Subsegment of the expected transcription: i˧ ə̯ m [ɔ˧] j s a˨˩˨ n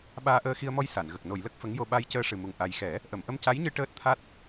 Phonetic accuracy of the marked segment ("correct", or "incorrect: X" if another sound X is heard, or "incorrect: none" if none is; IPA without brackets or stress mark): correct